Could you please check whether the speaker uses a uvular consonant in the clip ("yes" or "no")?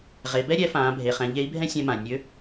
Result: yes